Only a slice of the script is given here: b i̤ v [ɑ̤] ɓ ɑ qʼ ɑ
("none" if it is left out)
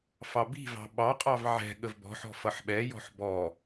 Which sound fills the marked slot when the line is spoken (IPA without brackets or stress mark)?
ɑ̤